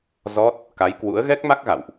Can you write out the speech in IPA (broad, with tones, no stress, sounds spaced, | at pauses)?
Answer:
z ɔ˦˥ t̚ | k a˨˦ j k w ṵ˧˥ ə̯ ɣ ɛ˦˥ k̚ m a˦˥ k̚ ɣ a̰˧˨ w ʔ